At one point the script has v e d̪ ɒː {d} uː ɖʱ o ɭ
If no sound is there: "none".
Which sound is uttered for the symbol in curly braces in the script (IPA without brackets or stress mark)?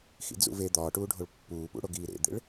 ʈ